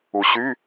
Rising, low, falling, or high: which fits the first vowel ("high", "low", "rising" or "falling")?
low